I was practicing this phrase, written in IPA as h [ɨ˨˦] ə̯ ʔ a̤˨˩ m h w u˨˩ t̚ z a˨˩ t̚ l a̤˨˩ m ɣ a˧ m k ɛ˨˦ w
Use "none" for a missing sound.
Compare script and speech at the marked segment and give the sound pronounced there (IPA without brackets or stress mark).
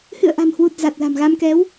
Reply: ɨ̰˧˨